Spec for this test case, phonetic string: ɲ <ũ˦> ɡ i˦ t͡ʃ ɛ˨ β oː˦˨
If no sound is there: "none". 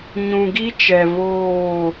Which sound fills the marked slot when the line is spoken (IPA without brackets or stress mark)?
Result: ũ˨